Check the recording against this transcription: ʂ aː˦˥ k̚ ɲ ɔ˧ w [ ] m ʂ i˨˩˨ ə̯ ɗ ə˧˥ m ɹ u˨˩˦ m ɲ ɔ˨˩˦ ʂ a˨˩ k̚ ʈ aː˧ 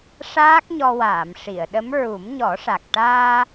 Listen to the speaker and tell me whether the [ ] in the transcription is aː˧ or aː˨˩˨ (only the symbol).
aː˨˩˨